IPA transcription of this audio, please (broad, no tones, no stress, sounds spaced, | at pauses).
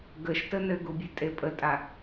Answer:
ɡ ə ʃ t ə n ɘ ɡ u bʲ ɛ tʼ e pʼ ə tʼ a